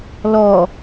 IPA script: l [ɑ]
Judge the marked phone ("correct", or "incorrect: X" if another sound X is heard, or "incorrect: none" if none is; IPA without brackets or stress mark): incorrect: ɔ